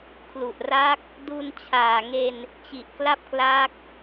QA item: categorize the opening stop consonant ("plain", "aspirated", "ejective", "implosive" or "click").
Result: aspirated